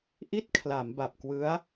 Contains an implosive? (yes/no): no